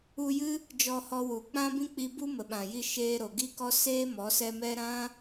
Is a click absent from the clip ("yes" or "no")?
yes